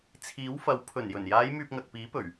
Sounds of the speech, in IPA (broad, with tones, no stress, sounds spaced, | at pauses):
t͡sʰ iː˨˥ w f ɐ˨˥ w pʰ ɵ˨˩ n j ɵ˨˩ n j aː˨˧ j m yː˧ p̚ ŋ ɐ˨ k̚ p iː˨˥ p ɵ˨˩ ɥ